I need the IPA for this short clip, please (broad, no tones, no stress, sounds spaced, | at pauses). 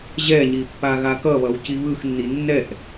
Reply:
ʑ ɛ ɲ i pː a ɣ a k ʌ β ʌ w c i β ɯ x nː i nː ɛ ʔ